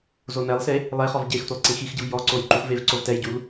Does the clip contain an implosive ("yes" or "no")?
no